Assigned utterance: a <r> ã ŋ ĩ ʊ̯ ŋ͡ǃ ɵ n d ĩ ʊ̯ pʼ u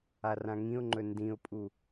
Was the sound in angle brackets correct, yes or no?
yes